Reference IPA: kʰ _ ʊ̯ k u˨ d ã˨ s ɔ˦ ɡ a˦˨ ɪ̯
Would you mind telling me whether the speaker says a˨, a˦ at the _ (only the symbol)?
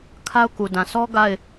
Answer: a˦